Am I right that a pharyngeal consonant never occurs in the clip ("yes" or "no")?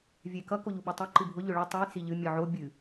no